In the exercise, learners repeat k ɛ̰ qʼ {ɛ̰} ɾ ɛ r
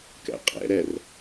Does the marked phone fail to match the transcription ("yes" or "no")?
no